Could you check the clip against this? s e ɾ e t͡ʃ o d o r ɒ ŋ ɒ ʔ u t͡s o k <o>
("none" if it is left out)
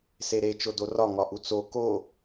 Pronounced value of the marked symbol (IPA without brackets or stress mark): o